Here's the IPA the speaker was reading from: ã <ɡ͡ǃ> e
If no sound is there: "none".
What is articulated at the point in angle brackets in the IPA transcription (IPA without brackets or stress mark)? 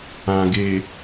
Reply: ɡ